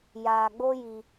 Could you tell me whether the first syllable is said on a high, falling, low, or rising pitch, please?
low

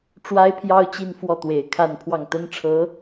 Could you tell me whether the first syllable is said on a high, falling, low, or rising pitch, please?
high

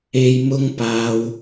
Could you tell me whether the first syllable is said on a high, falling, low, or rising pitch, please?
low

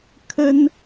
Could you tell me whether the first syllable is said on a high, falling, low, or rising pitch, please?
high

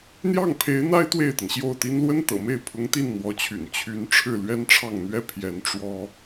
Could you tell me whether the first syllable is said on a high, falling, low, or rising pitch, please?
falling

